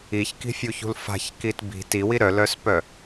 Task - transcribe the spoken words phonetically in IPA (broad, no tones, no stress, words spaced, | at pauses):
içki̤fʲuçṳl fa̤çkit bi̤ tiwi ɾœlœspœ